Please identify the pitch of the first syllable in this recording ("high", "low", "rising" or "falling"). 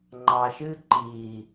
low